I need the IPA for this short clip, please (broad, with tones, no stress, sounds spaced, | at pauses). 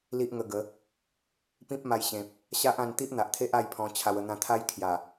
l i˦ ʔ ŋ ə˧ ɡ ə˨˦ | p ĩ˦ p̚ m a˧ j ɕ ẽ˨ p̚ | ɕ a˦ ʔ ã˧ n t̪ i˦ ʔ n̪ a˨ ʔ t̪ʰ e˦ ʔ a˥˧ j pʰ ɔ̃˧ t͡ɕʰ a˧ w ə˧ n̪ ã˧ t̪ʰ a˦ j kʰ j a˨˩